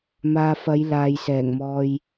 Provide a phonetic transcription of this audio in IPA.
m aː˨ f ɐ˨˧ j l aː˨ j s ɛː˨˩ ŋ m ɔː˧ j

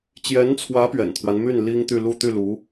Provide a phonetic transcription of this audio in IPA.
t͡ɕ j ɛ˧˥ n t͡sʰ w ä˧˥ p ɥ ɛ̰˨˩ n t̪ʰ w a˦ n m y˥˩ n l i˥ ŋ t̪ y˥˧ l u˥˧ t̪ y˥˩ l u˧˥

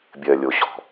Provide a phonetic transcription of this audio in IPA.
bʲ ɜ˨ lʲ o˨ ɕ ɔ̤˨

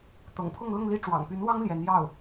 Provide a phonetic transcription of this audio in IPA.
t̪ ɤ̰˨˩ ŋ pʰ ʊ˥˧ ŋ l ʊ˥˧ ŋ l i˥˩ ʈ͡ʂ w ɑ̰˨˩ ŋ p y˧˥ n w ɑ˥ ŋ l j ɛ˧˥ n j ɑ˥˩ ʊ̯

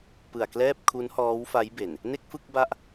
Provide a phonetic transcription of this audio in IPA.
p ɯ˨˩ a̯ k l ɛː˥˩ p̚ kʰ u˦˥ n h ɔː˦˥ w f a˦˥ j b e˨˩ n | n e˥˩ k̚ f ɯ˥˩ k̚ b a˦˥ ʔ

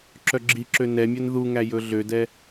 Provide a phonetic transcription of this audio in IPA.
ǁ œ ɡ͡ǁ i ǁ ø n ɛ mʲ œ n ð u ŋ æ j ɵ ɮ ø d ɛ

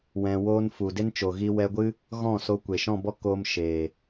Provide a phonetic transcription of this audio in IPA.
w ɛ̃˧ w oː˧ n f u˨ d e˧ n t͡ʃ o˨ ɣ i˧ w ɛ˧ ɡʷ ɨ˦ | ɣ ɔ̃˦˨ s o˧ kʷ e˨ ʃ ɔ̃˦˨ b ɔ˦ k oː˧ m ʃ eː˨

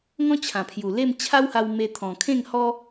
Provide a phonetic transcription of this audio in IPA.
ŋ ɔ̃˦ t͡ɕʰ ã˨˩ pʰ j u˨˩ l e˥˧ m t͡ɕʰ a˦ w h a˧ w m e˧ t̪ʰ ɔ̃˨˩ kʰ ẽ˥˧ ŋ h ɔ˦

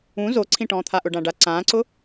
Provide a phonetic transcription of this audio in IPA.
ũ z o ǀʰ ĩ ʈ ɔ̃ː t̪ʰ a ʔ ʊ ɖ ã ɖ a ǀ ãː ǀ ʊ

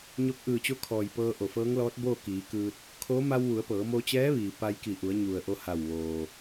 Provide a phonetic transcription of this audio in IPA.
ɲ o˧ k̚ ʔ ɯː˧˩ t͡ɕ o˧˥ kʰ ɔː˩ j p ɤː˧ ʔ o˩ f ɤː˧˥ ŋ l ɔː˧˥ t̚ b oː˥˨ k iː˩˧ k ɯː˧ t̚ | kʰ o˧˥ m a˧ w ʋ u˩˧ ə̯ p ɤː˩˧ m o˧ t͡ɕ ɛː˧˥ ʋ iː˩ p a˧ j k i˧˩ ʔ u˩˧ ə̯ ɲ u˩ ə̯ ʔ o˧ h a˧˩ w ʋ oː˩

